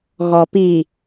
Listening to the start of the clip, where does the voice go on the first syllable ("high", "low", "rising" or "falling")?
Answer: low